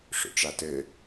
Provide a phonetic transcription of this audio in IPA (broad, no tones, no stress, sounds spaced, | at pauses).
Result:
ʂ o̰ ʈ͡ʂ a t ɘ